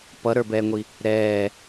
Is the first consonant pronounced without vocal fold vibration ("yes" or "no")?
yes